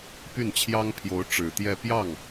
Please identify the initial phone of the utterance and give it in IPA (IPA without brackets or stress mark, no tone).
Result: p